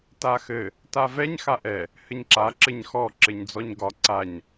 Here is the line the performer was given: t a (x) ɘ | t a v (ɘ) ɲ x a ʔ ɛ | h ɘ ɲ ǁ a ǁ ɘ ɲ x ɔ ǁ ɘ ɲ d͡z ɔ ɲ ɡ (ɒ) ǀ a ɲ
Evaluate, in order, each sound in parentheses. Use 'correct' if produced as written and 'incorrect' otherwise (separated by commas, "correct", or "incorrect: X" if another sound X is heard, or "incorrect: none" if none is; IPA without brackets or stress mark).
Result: correct, incorrect: ɛ, correct